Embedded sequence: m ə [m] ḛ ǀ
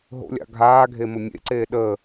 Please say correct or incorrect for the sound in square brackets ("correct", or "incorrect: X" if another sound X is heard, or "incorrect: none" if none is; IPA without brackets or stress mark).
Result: incorrect: mʲ